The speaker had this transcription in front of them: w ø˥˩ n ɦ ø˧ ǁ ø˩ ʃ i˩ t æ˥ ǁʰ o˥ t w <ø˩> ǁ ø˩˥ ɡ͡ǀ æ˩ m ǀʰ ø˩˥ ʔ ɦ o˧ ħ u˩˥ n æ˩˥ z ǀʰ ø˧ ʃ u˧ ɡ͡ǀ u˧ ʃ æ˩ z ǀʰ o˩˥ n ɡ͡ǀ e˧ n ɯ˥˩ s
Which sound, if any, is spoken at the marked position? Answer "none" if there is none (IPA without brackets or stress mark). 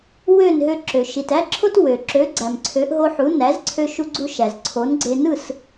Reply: ø˩